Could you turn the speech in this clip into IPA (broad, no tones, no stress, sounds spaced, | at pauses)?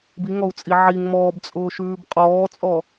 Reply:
b i ŋ ɔ u̯ t͡sʼ i ʕ i ŋ m ɔː b t͡sʼ ʊː ʃ ʉː b qʼ ɔː t͡sʼ ɔ